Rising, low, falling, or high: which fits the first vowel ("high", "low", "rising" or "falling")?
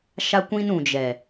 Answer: high